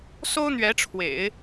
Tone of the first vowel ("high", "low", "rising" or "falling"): high